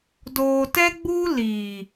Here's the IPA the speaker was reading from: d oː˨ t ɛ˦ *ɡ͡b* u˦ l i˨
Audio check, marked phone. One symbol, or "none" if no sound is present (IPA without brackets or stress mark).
ɡ͡b